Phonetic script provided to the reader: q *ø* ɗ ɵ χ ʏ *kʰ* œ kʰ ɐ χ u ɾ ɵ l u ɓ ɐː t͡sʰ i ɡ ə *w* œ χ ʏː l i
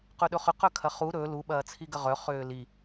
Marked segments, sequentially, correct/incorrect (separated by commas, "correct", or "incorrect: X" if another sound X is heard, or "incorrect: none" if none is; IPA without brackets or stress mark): incorrect: ɵ, incorrect: q, incorrect: ʁ